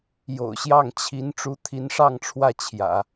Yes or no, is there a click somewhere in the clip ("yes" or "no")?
no